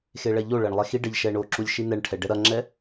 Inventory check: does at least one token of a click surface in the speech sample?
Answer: yes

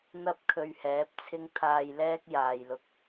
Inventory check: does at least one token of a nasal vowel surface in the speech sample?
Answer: no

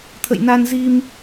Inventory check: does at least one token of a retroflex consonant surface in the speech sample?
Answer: no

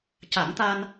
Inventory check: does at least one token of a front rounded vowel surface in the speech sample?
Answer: no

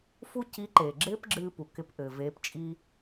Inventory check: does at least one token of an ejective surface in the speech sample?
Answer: yes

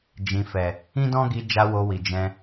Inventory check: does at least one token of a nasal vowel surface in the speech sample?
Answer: yes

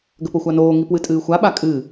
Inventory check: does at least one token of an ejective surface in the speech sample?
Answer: yes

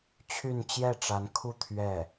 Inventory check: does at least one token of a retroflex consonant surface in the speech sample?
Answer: yes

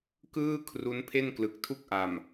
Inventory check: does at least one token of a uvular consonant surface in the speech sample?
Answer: no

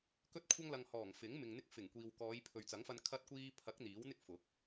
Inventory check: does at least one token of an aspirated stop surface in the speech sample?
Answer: yes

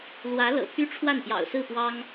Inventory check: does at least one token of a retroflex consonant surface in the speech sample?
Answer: yes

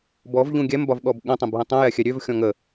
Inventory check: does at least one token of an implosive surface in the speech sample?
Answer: yes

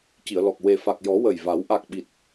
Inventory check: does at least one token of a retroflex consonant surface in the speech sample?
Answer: no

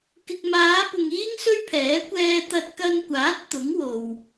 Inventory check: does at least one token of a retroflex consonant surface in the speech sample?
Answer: no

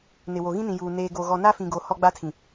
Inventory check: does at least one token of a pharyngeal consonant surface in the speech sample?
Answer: no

